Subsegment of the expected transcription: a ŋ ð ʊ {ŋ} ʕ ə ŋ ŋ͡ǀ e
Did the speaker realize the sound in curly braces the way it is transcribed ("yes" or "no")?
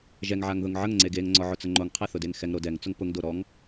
yes